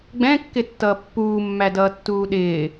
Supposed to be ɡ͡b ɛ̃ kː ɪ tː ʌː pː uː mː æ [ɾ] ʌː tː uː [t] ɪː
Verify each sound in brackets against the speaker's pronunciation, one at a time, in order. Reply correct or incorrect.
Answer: incorrect: d, incorrect: ɗ

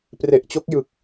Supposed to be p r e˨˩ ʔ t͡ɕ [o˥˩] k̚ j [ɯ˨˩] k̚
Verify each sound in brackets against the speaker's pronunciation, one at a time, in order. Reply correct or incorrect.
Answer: incorrect: o˦˥, correct

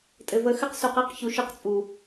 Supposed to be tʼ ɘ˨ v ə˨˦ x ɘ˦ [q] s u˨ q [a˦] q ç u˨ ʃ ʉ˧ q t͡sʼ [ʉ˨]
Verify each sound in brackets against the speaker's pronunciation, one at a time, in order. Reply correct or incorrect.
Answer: correct, correct, incorrect: u˨

